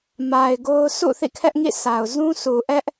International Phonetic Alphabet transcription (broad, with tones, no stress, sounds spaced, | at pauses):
m a˨ ɪ̯ ɡ o˦ ʊ̯ s ṵ˦˨ θ ḭ˦˨ kʰ ɛ˦ ʔ ŋ ḭ˦˨ s a˨ ʊ̯ z ũ˦ sʰ u˨ ʔ ɛ˦ ʔ